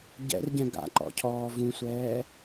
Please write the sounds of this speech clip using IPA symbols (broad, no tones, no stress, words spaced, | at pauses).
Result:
ɟɛ̰rɟɛ̃ ɡa̰ǃɔ̰cʰɔː vũsʷɛː